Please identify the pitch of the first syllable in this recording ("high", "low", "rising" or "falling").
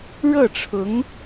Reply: falling